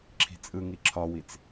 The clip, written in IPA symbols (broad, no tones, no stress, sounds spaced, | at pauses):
ǁʰ i̤ t͡sʼ ɯ ŋ i ǁʰ ɒ w i t͡s